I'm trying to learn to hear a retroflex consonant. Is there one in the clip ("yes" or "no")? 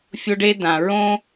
yes